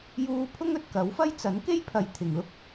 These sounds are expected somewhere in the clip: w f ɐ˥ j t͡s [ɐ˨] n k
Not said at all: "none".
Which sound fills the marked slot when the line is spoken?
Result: ɐ˨˥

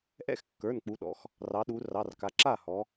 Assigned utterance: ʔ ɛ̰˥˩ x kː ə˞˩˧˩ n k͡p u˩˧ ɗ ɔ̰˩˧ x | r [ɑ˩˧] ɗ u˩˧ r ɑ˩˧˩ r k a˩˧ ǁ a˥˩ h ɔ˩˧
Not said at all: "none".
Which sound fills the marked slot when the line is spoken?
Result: ɑ˩˧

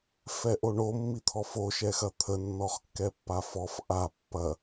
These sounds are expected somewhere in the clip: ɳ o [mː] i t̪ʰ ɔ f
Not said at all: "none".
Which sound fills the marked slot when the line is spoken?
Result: mː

